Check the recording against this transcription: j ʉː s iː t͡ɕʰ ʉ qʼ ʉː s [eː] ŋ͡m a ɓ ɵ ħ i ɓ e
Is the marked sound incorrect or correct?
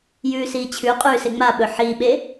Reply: incorrect